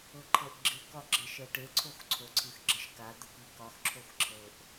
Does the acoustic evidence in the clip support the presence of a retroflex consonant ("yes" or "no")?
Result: yes